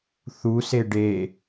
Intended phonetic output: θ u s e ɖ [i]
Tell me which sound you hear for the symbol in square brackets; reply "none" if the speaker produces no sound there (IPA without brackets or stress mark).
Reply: e